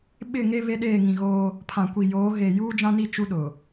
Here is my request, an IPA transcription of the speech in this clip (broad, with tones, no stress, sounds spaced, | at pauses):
ɓ ɪ˦˨ ŋ e˦ β e˦ ɗ eː˦˨ ŋ ĩ˨ ɣ oː˦ | pʰ ã˨ kʷ i˨ j oː˨˦ ɣ e˨ j uː˦ d͡ʒ ã˦ n i˦˨ t͡ʃ u˦ ɗ ʊ˨